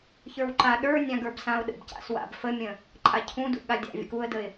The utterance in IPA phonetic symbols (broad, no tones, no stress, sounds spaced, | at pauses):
ç ə˞ w ǃ a ɗ ə˞ nʲ ã ɡ ə˞ b s ã ʊ̯ ɗ ə̰ b c a̰ s w a̰ b f ə mʲ ə̃ | ǃʼ a cʰ ũ d ṵ ɠ a dʲ a̰ vʲ ə̰ k u ə̯ d ə ɪ̯